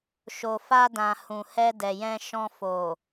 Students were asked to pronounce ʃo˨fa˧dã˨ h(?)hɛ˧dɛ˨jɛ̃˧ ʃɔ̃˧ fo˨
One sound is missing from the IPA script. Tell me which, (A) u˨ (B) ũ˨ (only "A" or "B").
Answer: B